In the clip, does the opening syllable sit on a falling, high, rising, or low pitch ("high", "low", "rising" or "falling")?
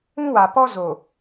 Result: high